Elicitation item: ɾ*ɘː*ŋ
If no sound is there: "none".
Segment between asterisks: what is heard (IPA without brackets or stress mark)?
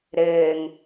ɘː